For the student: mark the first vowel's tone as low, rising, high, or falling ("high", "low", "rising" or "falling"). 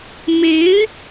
rising